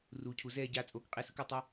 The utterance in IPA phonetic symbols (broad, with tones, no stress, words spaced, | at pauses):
ruː˨cʰu˨ zɛː˦˨ɟaː˧ t͡sʼoː˨kqʼe˧sɯ˧ko˧ tˤɛ˧